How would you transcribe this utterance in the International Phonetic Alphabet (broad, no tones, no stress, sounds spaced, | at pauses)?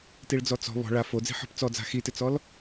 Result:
t i ɭ d͡z ɔ t͡s ɔ̤ β ɔ̤ ɭ a f o d͡z i̤ ħ ɔ̤ p t͡s ɔ d͡z a̤ x i t ɪ t͡s ɔ l